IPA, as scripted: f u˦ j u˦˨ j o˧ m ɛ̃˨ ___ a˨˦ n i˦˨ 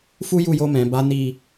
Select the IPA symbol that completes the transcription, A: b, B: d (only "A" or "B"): A